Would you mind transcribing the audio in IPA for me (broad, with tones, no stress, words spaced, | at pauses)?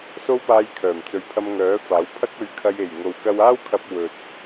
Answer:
so˥wpaː˧jkʰœː˨˩mt͡sɵ˨˧ɥ pʰɐ˧mŋœː˨˥faː˨˥w pʰɐ˥k̚ɵ˧ɥkʰɐ˧j e˨˩j ŋo˨wkɐ˧waː˥w kʰɐ˧p̚ wɵ˨t̚